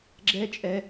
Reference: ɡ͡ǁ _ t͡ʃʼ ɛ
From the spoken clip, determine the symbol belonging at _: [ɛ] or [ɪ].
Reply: ɛ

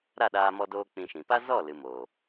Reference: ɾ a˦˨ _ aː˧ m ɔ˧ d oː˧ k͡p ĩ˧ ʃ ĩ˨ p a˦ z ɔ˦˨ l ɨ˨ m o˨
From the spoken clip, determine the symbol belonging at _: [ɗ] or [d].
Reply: ɗ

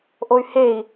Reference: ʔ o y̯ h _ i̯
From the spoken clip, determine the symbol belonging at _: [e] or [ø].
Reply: e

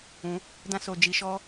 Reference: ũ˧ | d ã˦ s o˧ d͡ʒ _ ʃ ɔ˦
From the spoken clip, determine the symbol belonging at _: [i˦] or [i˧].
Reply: i˧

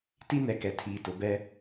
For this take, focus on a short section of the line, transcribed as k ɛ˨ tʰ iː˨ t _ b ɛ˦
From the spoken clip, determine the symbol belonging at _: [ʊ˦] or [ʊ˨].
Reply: ʊ˨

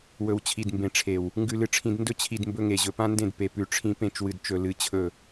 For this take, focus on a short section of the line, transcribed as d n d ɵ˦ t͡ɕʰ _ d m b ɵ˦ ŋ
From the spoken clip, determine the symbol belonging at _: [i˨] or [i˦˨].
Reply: i˨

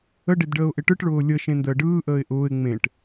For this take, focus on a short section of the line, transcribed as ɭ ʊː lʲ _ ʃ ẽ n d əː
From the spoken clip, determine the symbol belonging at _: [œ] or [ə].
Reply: ə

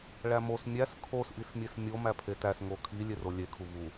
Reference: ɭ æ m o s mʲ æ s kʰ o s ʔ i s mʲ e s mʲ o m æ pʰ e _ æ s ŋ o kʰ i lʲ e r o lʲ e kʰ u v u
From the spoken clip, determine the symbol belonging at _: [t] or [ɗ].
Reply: t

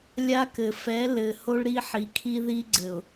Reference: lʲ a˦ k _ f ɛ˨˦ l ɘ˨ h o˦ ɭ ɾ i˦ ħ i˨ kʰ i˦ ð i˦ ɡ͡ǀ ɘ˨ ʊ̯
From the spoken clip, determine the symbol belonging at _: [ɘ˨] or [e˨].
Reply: ɘ˨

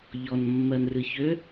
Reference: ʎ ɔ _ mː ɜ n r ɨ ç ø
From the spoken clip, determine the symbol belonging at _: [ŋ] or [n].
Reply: n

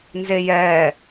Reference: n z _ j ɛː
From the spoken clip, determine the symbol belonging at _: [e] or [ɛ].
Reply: e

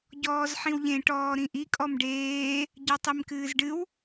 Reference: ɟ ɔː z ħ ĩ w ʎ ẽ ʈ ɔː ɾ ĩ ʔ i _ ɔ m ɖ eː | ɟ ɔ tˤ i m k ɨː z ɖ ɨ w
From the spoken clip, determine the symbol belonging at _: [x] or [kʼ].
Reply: kʼ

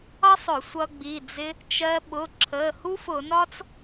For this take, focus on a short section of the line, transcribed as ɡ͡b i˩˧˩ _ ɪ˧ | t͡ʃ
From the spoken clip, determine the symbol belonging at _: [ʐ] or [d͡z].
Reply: d͡z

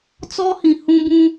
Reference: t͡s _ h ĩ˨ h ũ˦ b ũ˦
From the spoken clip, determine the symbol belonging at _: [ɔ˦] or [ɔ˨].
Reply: ɔ˦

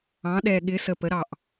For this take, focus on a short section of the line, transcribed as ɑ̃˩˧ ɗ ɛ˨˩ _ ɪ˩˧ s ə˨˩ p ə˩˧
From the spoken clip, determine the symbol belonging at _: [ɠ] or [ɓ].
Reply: ɠ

